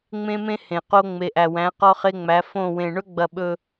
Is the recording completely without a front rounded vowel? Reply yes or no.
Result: yes